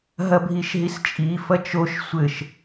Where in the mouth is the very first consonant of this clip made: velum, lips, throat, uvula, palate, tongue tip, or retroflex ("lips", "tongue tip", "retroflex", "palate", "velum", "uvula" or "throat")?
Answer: throat